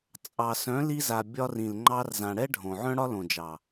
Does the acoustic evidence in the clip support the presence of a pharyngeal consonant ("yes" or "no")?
yes